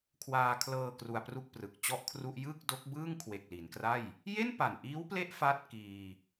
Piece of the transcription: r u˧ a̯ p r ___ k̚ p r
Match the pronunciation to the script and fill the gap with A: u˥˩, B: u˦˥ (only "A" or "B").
A